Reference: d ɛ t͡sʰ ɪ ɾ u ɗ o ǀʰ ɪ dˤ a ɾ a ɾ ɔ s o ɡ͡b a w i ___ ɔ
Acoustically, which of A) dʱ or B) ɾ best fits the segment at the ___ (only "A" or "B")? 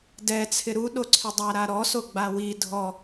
A